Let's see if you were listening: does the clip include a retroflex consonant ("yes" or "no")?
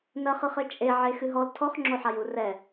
no